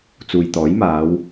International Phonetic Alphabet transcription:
t͡s uː˨ j t̪ ɔː˨˥ j m aː˨˧ w

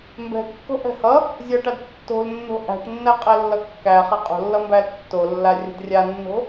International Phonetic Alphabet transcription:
m b ɛ̤ kː o̤ ʔ ɛ̤ h ʌ | zʲ ʌ ʈ a d tː o̤ l nː o̤ ʔ æ̤ ʈ nː æ qʼ ɛ lː ʌ kː æ χ a qʼ o̤ lː ʌ m b æ l tː o lː a rʲ ə̤ d rʲ a nː o̤

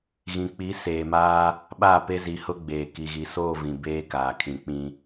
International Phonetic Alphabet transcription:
ɣ ĩ˨ k͡p i˨˦ s eː˨ m aː˦ | ɓ aː˦˨ p e˦ z i˨˦ h ʊ˦ ɡ͡b eː˨ k i˨ ɣ i˨ s oː˦˨ v ĩ˨ b eː˦ k aː˨ kʰ ĩ˨ k͡p ĩ˨

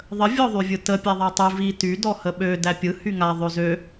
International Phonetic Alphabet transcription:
ðˤ ə vʲ ɔ ðˤ y vʲ ɯ t ə pʲ a ðˤ æ tˤ y v i t y d ɔ h ə ɓ ø d æ pʲ ɯ h y ŋ a ðˤ ø z ø

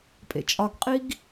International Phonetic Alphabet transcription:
pʼ ḛ t͡ʃʼ ɒ ɡ qʼ i ɡ

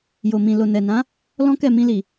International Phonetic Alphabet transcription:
j o˨ m ĩ˨ l o˨ n ɛ˨ n ã˨˦ | l ɔ̃˦ k ɛ˦˨ m ĩ˧ l i˨

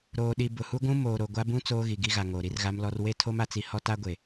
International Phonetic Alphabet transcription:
ɾ oː˨ ɗ i˨ b ʊ˨ h u˦ ɡʷ ũ˦ m oː˨ ɾ o˨ ɡʷ a˦ b ũ˦ t͡s oː˦ ɣ i˨ ɡ i˦ ɣ a˨ ŋ oː˨ ɾ i˦ r ɣ a˦ m l ɔ˦ r w e˦ tʰ o˦ m a˨ t͡s i˨ h ɔ˦ t a˦ ɡʷ e˨

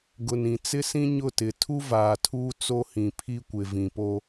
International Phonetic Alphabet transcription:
ɡ ʊ˨ n ĩ˨ t͡s ɪ˦ s ĩ˦ ɲ ʊ˦˨ t ɪ˨ tʰ u˦ v aː˨ tʰ uː˦ t͡s o˦ h ĩ˨ pʰ i˦ kʷ ɪ˨ v ĩ˨ p o˦

